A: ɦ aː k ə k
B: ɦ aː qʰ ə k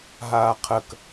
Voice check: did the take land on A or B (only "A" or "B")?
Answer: B